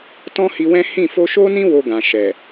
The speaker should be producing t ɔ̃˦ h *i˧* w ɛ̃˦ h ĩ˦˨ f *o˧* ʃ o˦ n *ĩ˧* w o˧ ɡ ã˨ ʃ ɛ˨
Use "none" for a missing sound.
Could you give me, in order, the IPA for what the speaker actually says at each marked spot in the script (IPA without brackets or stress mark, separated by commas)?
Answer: i˧, o˧, ĩ˦